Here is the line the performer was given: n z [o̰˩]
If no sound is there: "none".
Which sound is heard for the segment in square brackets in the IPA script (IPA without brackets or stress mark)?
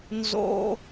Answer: o̰˩